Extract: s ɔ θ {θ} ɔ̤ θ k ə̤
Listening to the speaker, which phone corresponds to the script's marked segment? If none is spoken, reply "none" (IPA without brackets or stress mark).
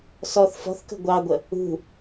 f